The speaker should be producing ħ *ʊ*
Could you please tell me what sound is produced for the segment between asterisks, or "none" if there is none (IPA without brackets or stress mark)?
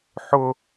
ʊ